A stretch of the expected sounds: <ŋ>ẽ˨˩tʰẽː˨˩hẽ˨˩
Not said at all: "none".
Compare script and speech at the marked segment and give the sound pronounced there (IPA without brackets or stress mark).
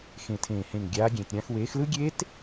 x